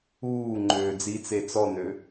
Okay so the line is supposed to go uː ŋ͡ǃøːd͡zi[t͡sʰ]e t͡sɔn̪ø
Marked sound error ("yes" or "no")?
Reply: yes